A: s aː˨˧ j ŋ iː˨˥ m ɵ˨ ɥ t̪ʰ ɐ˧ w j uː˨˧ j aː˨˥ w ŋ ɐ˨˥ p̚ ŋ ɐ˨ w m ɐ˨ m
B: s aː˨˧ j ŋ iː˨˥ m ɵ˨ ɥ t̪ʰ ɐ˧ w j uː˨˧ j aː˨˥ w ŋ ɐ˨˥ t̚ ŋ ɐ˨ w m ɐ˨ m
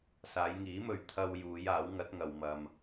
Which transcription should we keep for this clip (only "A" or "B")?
B